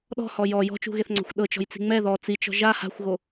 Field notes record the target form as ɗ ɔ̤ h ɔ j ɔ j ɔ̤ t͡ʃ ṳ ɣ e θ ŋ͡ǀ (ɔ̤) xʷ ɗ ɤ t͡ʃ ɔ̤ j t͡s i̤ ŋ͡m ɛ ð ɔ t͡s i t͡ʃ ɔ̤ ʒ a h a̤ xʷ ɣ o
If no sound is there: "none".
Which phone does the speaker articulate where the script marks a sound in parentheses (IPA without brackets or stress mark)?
ɔ̤